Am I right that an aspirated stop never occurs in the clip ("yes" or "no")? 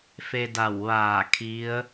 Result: no